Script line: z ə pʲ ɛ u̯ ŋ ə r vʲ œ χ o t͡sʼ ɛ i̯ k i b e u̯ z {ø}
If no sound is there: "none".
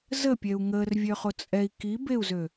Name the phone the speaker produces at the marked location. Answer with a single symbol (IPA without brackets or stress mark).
ø